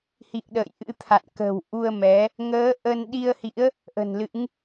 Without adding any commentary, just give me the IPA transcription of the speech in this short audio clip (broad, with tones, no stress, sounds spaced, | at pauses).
h ḭ˧˨ ə̯ ɗ ə̰ː˧˨ j ʔ ɨ̰˧˥ t̪ʰ a̰˧˨ n k ə̤˨˩ w ʔ u˧ ə̯ m ɛ˨˦ | ŋ əː˨˦ ʔ ə˧ n ɗ i˧ ə̯ h ḭ˧˥ ə̯ | ʔ ə̤˨˩ n l ɨ̰˧˥ ŋ